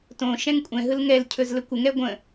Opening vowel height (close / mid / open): mid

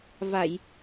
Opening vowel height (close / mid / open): open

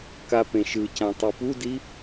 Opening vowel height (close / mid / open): open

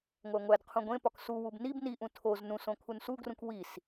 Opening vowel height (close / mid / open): open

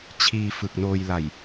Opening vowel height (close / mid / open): close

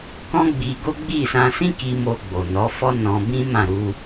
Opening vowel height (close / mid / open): mid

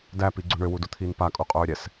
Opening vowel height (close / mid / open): open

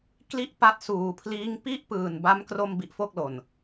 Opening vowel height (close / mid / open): close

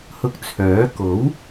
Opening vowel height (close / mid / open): close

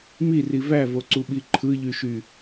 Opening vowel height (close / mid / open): close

